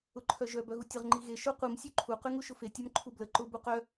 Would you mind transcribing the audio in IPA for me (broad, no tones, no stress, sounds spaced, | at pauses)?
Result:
ʊ ǃʰ œ ʒ œ b œ ɣ u tʲ ə ʁ ŋ͡ǃ i ɣ e ʃ ʊ qʷ i m sʲ ø ǃʰ u q y ŋ u ʃ ʊ f e tʲ ɔ m ǃʰ u b l ə ǃ ʊ b u q œ